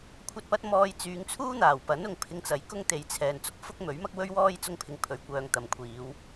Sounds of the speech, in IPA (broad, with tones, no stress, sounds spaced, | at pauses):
kʷʰ ɐ˨ t̚ p ɐ˧ t̚ m ɔː˧ j t͡s yː˨˧ ŋ t͡sʰ uː˥ n̪ aː˨˩ w p ɐ˨˥ n ʊ˨ ŋ pʰ ɪ˧ ŋ t͡s ɐ˨˥ j k ʊ˥ ŋ t̪ e˨˧ j t͡sʰ ɛː˨ n t͡s ʊ˥ k̚ f ʊ˥ k̚ m ɵ˨˥ ɥ m ɐ˥ k̚ w ɵ˥ ɥ w ɔː˥ j t͡s ʊ˥ ŋ pʰ ɪ˧ ŋ pʰ ɵ˨ ɥ kʷ œː˧ ŋ t̪ ɐ˨ m kʷʰ iː˨˧ w